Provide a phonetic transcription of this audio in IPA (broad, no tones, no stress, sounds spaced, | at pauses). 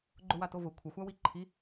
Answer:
ɡ͡ǃ ʊ w a t o v ʊ kʷʰ ɐ xʷ a w i ǃʰ i